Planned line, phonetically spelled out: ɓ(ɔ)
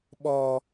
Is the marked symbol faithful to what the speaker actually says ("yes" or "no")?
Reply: yes